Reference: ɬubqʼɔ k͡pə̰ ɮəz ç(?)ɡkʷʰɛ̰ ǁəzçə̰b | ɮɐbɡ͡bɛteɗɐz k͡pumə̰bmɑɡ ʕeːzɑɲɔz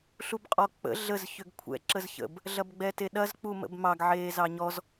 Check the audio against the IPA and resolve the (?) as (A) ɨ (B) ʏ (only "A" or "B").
B